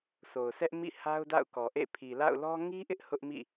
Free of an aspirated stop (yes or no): no